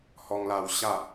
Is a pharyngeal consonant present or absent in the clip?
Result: absent